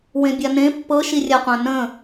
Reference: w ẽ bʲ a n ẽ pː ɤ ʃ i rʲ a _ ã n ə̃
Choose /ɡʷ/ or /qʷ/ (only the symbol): qʷ